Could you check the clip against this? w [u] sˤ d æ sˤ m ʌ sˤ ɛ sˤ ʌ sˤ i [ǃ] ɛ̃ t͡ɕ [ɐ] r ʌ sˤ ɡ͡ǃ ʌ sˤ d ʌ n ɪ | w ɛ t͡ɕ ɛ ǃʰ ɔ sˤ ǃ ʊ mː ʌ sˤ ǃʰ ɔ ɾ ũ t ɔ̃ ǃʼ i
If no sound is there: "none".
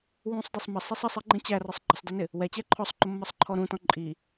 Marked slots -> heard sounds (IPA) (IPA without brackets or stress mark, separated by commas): ũ, ɡ͡ǃ, æ